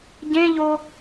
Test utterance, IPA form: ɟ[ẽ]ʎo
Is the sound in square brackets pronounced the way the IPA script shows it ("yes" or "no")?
yes